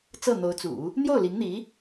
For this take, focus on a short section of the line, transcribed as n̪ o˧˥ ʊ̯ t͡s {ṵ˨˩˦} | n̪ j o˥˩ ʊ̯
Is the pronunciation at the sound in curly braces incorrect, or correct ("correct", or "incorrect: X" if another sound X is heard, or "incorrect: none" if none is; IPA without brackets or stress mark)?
correct